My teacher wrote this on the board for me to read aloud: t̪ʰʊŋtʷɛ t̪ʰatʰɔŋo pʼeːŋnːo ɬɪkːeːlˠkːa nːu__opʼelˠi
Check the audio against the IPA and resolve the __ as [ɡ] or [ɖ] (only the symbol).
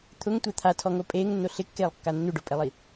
ɖ